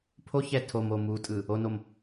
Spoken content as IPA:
pʰoçɛ tʰomo mutʼɯ | onom

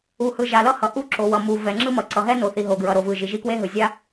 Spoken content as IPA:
u˩hɯ˩ ʒa˩lʌ˥hʌ˩ ʔu˥ǁo˩wʌ˩ mu˩ vɛ˩ŋ͡ǁɯ˥mʌ˩ ǀʌ˩ɦɛ˥no˩θi˩ ɦo˩ɡɹʌ˩ ɾo˩vɯ˩ ʒi˩ʒi˥kwe˥ɦɯ˩ zʲa˥

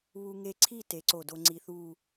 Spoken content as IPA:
βu˧ŋe˧ǀʰi˥˧ te˩˧ǀo˧˩do˧ŋ͡ǀi˧ θu˥˧

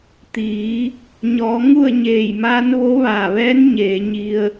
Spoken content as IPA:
t̪iː˩˧ | ɲɔː˩˧ ŋu˥˨ə̯ɲeː˧˩jmaː˧˥n ʋo˧˥ʋaː˧˩ʋɛː˧˥n ɲeː˩˧ɲi˧ə̯

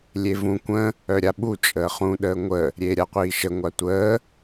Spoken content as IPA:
lʲevũ kʷə̃ | œɾʲaɓu t͡ʃʼəːχũ ɗəːŋʷə | ɾʲeːɾʲaqʷiːʃə ŋʷatʷəː

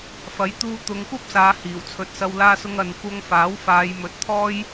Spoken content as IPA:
fɐ˨˥jt̪uː˧ t̪ʊ˨˧ŋkʷɐ˥p̚saː˨˧ hiː˨˩wt͡sʰɵ˨˥t̚sɐ˧w laː˧sʊ˧ŋɐ˨n kʷɐ˧ŋfaː˨˥w faː˨˧jmɵ˨˥t̚t̪ʰɔː˥j

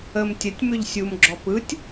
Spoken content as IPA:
əm tʲətʲmʏʎ sʲumɡ͡ǁɔ pɯtʲ

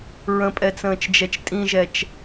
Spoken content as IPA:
ɹə̃pʼɛt͡sə̃ːt͡ʃd͡ʒɛt͡ʃ tʼĩʒɛt͡ʃ

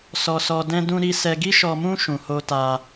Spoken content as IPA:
sɔ˧sɔ˧ dɛ̃˦dũ˦ɾi˦ sɛ˧ɡi˦ʃɔ˧mũ˦ ʃũ˧ho˦ta˦

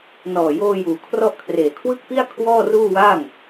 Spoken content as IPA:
nɔː˨˩joː˧juː˩˦ kʰrɔ˦˥ʔkʰreː˨˩kʰwɯ˥˩k̚pi˥˩a̯ kʰwɔː˥˩ruː˥˩waː˥˩ŋ

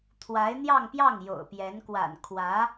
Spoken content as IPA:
t̪ʰwa˧˥ɪ̯ n̪jɑ˥˧ŋpjɑ˥˩ŋ jo̰˨˩ʊ̯pjɛ˧˥n kwa̰˨˩n kʰwä˧˥

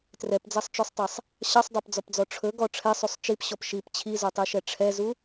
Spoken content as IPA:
trɛpd͡zæsˤt͡ʃøsˤtˤæsˤ | ɕɑsˤdˤɑpd͡zɔpd͡zɔ ʈ͡ʂʰɵɡɔ ʈ͡ʂʰɛsˤusˤ t͡ʃipɕɔp ʃip t͡ɕʰizotˤiʃɛ ʈ͡ʂʰɛzu

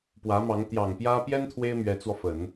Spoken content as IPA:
pwä˧˥mɑ˧˥ŋ t̪jɑ˨˩ŋpjä˥ pjɛ˥n t̪ʰwe˥ɪ̯ mɥɛ˧˥t͡swɔ˧fə˨˩˦n

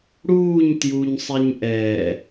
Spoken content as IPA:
ɽuːɲ tjuɲsˤeɲ ʔɛː

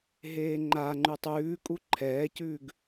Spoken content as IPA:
ɦeːŋ͡ǃaŋ͡ǃʉtˤ ʉːkʼu ǃʰɛːcʉːɡ

